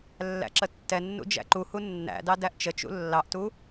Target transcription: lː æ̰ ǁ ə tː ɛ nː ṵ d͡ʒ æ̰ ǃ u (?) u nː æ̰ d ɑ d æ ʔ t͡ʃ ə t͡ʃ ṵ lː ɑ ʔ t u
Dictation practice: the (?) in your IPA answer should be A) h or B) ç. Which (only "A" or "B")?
A